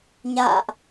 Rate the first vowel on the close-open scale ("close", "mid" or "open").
open